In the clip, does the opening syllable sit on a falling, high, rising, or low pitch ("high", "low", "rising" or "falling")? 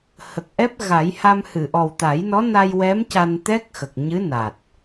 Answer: low